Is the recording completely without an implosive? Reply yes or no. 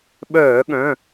no